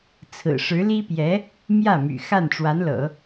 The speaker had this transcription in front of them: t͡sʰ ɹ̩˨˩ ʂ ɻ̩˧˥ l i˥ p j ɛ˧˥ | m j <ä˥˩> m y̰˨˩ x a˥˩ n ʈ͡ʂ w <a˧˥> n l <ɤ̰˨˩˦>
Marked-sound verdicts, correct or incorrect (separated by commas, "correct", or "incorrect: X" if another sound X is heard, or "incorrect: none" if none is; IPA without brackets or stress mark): correct, correct, correct